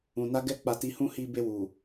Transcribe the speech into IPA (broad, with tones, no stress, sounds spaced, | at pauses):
ũ˨ n a˧ ɡ ɛ˧ k͡p a˧ t i˧ h ũ˦ h i˧ b e˧ w u˨